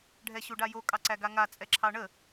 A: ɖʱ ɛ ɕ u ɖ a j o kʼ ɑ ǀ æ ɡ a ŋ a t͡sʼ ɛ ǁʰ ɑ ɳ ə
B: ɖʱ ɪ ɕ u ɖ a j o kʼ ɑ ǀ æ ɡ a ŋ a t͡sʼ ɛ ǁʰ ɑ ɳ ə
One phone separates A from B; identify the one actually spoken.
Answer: A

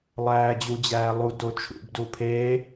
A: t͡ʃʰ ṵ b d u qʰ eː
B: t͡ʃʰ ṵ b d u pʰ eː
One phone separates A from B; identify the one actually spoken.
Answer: B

